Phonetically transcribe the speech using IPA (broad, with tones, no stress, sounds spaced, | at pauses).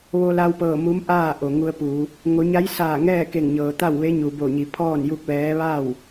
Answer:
ʋ o˧ l a˧ w p ɤː˧˩ m u˧˥ m ʔ aː˥˨ ʔ o˩ ŋ u˧ ə̯ p uː˩˧ | ŋ o˩˧ ɲ a˧˥ j s aː˧˩ ŋ ɛː˥˨ k e˧˩ ŋ ɲ ɤː˩ t̪ a˥˨ w ʋ e˧˥ ɲ u˩ b o˧˩ ɲ i˩˧ pʰ ɔː˥˨ n j u˥˨ k̚ ʋ ɛː˧˥ ʋ a˥˨ w